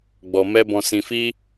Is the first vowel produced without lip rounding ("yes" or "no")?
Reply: no